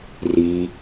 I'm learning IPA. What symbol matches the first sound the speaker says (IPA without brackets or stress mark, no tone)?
r